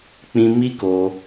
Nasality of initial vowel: nasal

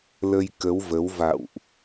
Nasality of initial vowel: oral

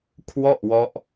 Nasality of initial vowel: oral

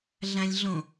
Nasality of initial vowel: nasal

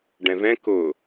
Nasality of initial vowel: nasal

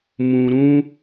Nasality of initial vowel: nasal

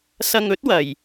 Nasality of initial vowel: oral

